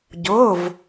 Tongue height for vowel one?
high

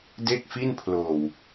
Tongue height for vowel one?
mid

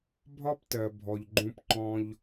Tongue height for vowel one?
low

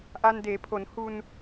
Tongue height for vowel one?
low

